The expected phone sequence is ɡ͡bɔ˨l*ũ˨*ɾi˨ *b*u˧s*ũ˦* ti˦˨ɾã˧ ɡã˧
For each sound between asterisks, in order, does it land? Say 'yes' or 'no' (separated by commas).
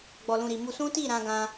yes, no, yes